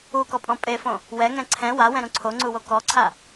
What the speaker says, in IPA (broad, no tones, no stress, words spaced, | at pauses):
ukɔpʼɔ̃ pʼefõ | wɛŋɛ̃ ǀʰɛ̃ wawɛ̃ɾũ ǀʰoŋ͡ǀuwo kɔǀʰa